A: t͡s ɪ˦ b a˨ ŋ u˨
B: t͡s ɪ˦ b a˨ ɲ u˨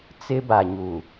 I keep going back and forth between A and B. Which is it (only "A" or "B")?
B